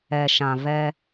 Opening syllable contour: low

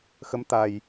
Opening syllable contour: rising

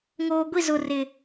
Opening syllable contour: low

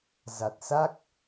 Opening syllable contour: low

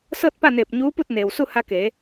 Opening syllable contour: falling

